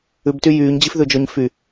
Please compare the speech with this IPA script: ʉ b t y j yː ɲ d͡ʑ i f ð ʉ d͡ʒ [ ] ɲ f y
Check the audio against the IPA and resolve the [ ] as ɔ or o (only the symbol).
ɔ